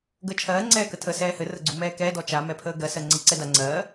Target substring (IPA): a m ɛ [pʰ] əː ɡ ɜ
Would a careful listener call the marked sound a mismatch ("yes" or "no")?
no